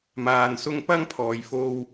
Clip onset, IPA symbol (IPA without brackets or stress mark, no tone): m